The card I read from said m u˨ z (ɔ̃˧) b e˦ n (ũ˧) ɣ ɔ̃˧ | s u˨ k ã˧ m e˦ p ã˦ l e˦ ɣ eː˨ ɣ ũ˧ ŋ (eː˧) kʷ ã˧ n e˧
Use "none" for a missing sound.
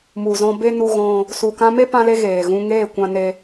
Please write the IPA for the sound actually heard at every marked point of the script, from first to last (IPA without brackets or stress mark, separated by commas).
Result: ɔ̃˧, u˧, eː˦˨